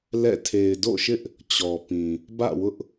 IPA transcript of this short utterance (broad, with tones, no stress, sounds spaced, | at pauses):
l ɛ̰˦˨ tʰ e˨ ɪ̯ d o̰˦˨ ʃ ɪ˦ ʔ | t͡ɕ ɔ˨ p ĩ˨ | b ä̰˦˨ w ʊ˦ ʔ